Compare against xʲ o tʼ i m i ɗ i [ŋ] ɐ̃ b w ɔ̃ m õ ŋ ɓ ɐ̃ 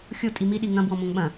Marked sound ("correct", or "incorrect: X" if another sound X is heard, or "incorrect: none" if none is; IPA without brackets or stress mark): correct